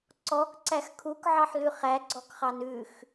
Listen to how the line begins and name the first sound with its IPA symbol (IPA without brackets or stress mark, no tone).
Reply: ǀ